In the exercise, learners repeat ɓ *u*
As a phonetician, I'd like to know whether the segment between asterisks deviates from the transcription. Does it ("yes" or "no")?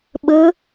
yes